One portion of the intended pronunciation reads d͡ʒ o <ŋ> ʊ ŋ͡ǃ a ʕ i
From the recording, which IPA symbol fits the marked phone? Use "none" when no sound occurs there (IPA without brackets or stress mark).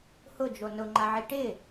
n